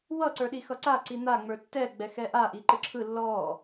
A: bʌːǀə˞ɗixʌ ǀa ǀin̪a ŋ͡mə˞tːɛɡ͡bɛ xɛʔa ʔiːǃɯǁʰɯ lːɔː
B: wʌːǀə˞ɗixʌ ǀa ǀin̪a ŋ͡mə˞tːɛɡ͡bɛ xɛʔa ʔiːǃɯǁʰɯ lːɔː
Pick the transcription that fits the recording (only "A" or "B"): B